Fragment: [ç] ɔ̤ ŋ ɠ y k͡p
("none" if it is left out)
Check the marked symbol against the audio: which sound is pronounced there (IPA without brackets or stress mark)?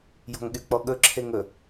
j